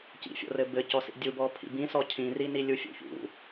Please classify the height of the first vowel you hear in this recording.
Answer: high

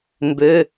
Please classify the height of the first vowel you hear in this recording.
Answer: mid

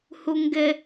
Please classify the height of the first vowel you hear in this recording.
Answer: high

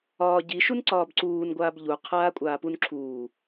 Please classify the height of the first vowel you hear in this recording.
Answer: low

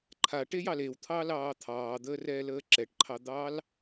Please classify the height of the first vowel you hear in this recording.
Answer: low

